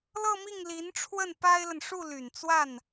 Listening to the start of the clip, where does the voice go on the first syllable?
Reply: falling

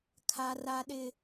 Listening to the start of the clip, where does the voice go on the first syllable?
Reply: high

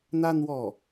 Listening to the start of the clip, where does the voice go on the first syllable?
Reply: high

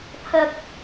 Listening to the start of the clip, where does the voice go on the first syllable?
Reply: high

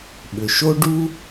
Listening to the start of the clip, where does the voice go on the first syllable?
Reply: low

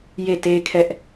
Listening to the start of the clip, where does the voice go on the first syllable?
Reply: falling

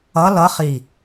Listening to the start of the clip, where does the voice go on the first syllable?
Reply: rising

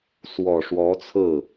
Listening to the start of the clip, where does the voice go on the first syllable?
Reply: low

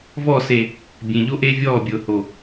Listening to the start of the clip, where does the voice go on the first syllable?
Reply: falling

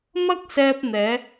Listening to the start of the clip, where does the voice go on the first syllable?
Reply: high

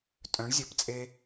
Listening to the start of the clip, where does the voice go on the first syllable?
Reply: rising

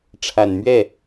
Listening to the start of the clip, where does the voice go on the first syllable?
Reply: low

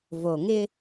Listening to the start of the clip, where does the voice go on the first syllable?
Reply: low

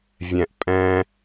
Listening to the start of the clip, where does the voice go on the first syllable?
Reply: low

